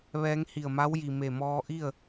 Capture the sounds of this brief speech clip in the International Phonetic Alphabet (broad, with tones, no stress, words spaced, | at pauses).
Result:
ʋɛː˧˥ŋhi˧˩ə̯ma˧˥wji˩ me˧˩mɔː˧ʔi˥˨ə̯